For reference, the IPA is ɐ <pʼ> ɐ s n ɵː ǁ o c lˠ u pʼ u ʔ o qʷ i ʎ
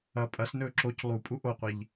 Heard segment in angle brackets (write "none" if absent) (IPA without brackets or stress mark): pʼ